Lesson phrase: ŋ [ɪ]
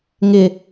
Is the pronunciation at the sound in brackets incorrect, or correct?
correct